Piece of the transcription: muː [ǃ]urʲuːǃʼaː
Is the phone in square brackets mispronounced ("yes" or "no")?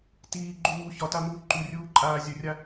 no